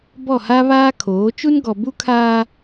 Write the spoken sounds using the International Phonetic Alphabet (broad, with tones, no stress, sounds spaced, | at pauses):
b ɔ˦˨ h a˦ β aː˦ kʰ oː˨˦ t͡ʃ u˦ n ɡ ɔ˨ b u˦ kʰ aː˦